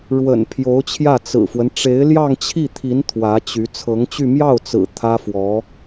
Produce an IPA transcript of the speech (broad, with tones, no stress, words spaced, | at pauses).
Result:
ɻwə̰˨˩n pʰjo˧˥ʊ̯t͡ɕʰjä˥˩ t͡sɹ̩˨˩fwə˦n ʈ͡ʂe˧˥ɪ̯ljɑ˥˧ŋt͡ɕʰi˥˩ t̪ʰi˧˥n t̪ʰwä˧˥t͡ɕy˧˥ t͡sʰɤ˧˥ŋt͡ɕy˥˧ mjɑ˥˩ʊ̯t͡sɹ̩˨˩ t̪ʰä˥fwɔ˧˥